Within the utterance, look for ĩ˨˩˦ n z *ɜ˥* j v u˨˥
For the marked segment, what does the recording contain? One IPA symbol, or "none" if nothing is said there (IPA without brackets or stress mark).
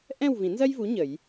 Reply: ɜ˥